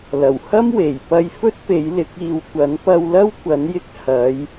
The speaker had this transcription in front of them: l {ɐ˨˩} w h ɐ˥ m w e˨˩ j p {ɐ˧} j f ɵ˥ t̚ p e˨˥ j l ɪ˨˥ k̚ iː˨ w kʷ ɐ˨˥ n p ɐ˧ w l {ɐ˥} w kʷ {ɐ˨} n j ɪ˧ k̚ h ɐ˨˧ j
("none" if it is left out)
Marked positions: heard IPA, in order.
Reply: ɐ˨˩, ɐ˧, ɐ˥, ɐ˨˥

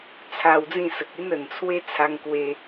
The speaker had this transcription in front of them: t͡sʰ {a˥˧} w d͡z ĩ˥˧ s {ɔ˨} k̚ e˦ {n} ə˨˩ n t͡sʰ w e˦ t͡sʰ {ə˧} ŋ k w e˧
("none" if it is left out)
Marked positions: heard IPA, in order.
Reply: a˧, ə˨, n, a˧

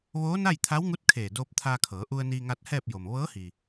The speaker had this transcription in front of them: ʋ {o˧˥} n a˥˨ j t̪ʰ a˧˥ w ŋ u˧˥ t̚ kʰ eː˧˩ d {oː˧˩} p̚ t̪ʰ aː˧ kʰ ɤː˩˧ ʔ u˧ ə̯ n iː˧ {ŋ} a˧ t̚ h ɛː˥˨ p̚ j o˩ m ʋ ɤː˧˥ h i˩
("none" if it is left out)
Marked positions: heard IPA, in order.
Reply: oː˧˥, oː˧, ŋ

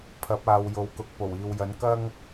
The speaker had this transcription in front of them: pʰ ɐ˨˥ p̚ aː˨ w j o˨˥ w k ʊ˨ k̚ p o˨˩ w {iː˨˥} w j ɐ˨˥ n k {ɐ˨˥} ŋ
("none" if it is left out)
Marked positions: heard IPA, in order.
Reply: iː˨, ɐ˥

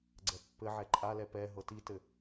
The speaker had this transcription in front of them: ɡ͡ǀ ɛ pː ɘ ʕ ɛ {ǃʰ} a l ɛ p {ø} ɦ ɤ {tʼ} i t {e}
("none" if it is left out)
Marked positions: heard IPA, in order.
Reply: ǃʼ, ɛ, t, ɘ

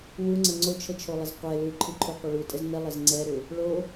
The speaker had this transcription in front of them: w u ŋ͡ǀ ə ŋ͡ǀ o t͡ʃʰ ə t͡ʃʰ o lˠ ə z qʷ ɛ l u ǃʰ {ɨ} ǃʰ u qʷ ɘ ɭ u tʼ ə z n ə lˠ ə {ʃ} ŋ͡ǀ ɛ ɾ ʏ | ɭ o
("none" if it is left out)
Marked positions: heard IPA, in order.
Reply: ɨ, z

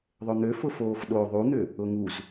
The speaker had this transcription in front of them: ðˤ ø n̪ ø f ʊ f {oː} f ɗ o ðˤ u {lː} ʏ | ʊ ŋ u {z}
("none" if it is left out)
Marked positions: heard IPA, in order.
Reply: oː, n̪, z

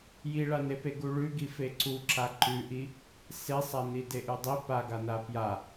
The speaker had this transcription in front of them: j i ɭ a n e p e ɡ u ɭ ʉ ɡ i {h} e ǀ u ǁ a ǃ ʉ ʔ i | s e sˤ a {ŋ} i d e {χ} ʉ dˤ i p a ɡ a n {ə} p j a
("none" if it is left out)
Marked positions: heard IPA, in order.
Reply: f, n, ʔ, a

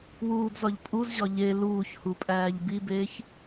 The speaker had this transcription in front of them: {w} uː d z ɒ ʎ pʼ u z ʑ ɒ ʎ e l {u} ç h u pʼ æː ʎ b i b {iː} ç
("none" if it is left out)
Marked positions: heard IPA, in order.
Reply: w, uː, eː

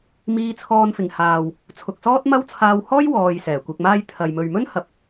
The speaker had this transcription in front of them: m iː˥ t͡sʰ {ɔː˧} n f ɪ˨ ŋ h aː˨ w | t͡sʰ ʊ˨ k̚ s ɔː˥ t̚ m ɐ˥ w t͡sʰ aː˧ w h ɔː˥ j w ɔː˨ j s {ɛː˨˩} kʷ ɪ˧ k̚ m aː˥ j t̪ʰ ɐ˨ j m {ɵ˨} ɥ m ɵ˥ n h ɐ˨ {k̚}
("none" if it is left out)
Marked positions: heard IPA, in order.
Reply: ɔː˧, ɛː˨˩, ɵ˨, p̚

